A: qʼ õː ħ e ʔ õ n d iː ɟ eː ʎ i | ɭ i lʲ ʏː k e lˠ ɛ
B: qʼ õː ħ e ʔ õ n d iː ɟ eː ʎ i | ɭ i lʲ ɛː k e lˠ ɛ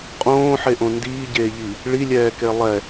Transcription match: B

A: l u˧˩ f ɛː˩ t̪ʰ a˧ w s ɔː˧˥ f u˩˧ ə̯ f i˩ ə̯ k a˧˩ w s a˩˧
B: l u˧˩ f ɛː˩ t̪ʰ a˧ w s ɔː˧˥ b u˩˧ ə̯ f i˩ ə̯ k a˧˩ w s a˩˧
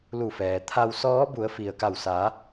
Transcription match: B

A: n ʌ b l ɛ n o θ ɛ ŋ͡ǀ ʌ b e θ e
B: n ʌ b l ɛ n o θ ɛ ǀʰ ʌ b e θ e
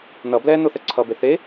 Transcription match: B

